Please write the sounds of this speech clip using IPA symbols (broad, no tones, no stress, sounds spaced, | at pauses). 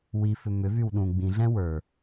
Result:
w i f ʏ m ʏ v y w ɗ ũ ɡ͡b ĩ ɮ ɛ̃ w ə˞